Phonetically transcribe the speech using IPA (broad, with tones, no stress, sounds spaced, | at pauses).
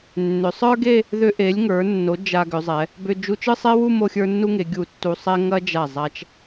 nː ʏ˩˧ sˤ ə˞˥ ɡ e˥˧ | ð ʏ˧ ʔ e˩˧ lʲ ŋ ə˞˩˧ nː o˩˧ d͡ʒ a˧ ɡ ʏ˩˧ zˤ ɛ˩˧ | b ʏ˧ d͡ʒ u˧ t͡ʃ ɯ˥˧ sˤ e˥ w u˥˧ m o˥˧ xʲ ə˞˥ nː u˥ ŋ e˩˧ ɡʲ u˧˩ tː u˧ sˤ ɛ˥ ŋ ɐ˥ d͡ʒ a˧˩ zˤ a˧ t͡ʃ